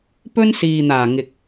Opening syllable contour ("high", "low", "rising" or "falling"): high